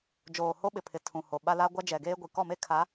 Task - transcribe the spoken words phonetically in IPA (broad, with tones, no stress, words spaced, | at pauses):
d͡ʒoː˨ho˦ɓɪ˨pʰɪ˨ tʰũ˨ho˨ ɓa˦la˦ ɡʷa˦d͡ʒɛ˨ɡeː˦ɡʷi˨ kɔ˦˨me˦ kʰa˨˦